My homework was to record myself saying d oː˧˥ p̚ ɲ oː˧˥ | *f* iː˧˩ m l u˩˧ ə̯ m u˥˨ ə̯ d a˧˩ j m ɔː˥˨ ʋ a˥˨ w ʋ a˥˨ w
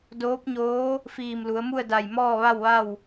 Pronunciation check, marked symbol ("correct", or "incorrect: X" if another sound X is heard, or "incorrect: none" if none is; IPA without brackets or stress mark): correct